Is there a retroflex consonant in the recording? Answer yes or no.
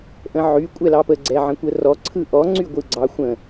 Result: no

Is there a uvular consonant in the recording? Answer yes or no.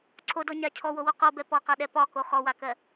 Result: yes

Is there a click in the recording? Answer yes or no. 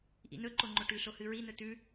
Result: yes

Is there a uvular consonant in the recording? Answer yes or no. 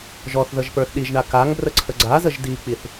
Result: no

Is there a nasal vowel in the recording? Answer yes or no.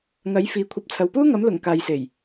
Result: no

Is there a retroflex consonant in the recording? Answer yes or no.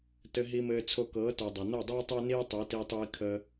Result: no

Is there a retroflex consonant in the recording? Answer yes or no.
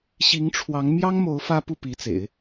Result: yes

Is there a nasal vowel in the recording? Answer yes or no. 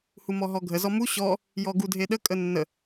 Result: no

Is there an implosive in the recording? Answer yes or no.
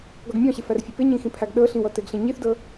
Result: yes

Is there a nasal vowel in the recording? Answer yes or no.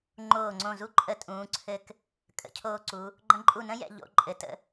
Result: yes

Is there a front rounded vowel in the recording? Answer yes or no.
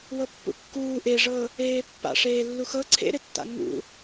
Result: no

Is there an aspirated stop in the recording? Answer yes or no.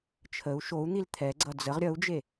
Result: yes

